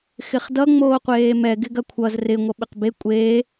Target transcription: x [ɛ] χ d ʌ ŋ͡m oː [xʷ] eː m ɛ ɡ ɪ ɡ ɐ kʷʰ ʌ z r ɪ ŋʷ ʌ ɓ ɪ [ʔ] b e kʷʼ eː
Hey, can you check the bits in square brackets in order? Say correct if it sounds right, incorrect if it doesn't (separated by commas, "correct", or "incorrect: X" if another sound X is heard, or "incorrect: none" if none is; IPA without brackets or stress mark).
incorrect: ɪ, incorrect: qʷ, incorrect: q